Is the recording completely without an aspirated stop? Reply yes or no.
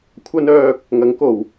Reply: no